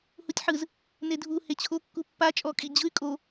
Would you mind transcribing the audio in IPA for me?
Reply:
h u tʲ ħ ɯ z | n e dʱ u h e t͡ɕʰ o kː u pː a t͡ʃʼ ɔ kʼ i d͡ʑ ɯ y̯ kʼ o

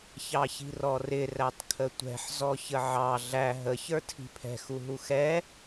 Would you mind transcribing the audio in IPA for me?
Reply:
ç ɑ ç i̤ r ɔ r ɪ r æ tˤ kʰ ə tʷ ɛ̤ ħ z ɔ ç ə ʕ ɑ ɮ æ ɦ ə ç ə˞ tʰ i̤ pʰ ɛ̤ x u ɦ u x ɛ

